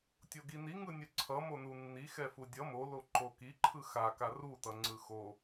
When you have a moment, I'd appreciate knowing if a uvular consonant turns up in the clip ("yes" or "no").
no